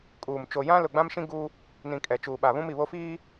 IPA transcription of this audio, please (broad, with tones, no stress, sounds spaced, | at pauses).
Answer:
kʼ uː˨ m t͡ʃ o˨ j ã˦ l ʊ˨ ɡ͡b ã˦ m ʃ ĩ˦ ɡ uː˦ | n ĩ˨ kʼ ɛ˨ t͡ʃ uː˨ ɓ a˨ β ũ˦ m i˨ β o˦ f iː˦